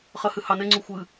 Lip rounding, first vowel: unrounded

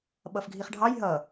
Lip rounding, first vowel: unrounded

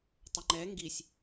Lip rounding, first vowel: unrounded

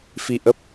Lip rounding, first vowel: unrounded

